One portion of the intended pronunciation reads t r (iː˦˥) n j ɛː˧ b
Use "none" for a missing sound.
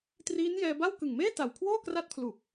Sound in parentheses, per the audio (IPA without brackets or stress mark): iː˦˥